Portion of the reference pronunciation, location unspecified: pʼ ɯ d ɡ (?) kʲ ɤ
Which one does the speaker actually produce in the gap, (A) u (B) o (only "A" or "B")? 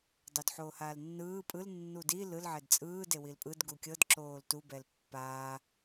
A